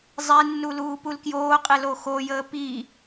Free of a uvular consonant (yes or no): no